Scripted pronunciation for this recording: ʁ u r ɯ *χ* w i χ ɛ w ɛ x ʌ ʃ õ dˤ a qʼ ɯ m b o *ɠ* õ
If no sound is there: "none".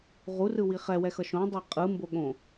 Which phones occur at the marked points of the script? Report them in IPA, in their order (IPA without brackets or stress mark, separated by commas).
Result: none, ɠ